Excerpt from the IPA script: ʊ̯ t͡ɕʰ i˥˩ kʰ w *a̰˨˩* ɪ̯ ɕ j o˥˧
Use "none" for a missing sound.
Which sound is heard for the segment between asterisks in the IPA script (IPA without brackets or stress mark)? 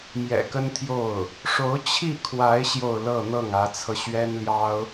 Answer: a˧˥